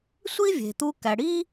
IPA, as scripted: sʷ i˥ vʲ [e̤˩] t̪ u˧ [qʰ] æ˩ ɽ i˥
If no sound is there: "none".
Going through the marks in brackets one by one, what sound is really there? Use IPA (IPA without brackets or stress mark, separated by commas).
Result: e̤˩, k